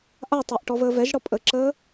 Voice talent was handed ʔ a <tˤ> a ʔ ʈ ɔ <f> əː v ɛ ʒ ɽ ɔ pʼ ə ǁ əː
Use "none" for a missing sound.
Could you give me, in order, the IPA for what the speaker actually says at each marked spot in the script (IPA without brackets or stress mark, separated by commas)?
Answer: tˤ, v